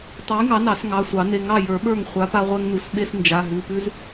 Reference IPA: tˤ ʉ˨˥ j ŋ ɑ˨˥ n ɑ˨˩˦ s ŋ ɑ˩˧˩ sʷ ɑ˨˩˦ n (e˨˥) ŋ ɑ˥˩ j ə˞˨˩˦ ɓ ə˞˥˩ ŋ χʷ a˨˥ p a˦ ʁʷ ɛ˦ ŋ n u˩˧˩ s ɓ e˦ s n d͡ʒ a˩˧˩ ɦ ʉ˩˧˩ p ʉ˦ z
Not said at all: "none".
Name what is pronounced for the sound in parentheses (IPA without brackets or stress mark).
e˩˧˩